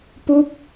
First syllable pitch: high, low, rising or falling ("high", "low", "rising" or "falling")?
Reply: falling